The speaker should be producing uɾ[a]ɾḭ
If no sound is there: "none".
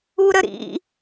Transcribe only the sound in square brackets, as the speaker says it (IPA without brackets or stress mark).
ə